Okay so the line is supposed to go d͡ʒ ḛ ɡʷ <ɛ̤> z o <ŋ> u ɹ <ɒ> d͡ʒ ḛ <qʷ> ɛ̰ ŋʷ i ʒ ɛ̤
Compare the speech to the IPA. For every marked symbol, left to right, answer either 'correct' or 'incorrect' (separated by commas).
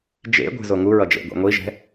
correct, correct, incorrect, incorrect